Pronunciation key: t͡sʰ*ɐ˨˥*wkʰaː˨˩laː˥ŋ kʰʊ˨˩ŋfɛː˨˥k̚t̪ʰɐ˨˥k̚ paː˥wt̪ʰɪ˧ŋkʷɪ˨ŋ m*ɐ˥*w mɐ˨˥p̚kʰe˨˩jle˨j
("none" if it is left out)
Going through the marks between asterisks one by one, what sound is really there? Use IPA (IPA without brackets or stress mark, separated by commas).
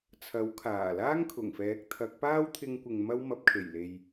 ɐ˨˥, ɐ˥